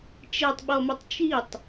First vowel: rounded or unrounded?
unrounded